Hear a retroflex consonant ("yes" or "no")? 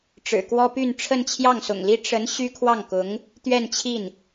yes